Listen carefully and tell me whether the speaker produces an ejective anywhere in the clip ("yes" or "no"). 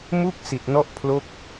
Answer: no